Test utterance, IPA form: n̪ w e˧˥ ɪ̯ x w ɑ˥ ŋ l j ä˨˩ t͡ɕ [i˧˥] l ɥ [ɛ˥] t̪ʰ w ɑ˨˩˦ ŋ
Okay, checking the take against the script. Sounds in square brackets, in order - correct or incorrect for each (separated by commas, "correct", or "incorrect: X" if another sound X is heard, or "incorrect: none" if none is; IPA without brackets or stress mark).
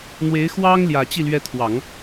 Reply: incorrect: i˥˩, incorrect: ɛ˧˥